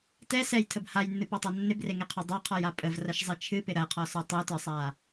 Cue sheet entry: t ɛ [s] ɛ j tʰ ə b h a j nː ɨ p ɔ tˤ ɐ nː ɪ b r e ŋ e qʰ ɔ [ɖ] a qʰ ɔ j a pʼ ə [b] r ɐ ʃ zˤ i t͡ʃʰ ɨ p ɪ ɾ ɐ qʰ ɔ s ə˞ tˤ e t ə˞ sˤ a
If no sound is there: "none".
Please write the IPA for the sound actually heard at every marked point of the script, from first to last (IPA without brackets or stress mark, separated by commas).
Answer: s, dˤ, v